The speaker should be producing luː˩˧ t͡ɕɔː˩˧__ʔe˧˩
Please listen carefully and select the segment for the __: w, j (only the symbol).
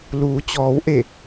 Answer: w